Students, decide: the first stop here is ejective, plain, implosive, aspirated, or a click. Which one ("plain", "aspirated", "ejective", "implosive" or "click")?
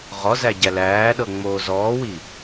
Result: plain